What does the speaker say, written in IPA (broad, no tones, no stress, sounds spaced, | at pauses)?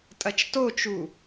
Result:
tʼ ɐ t͡ʃ t o t͡ʃ u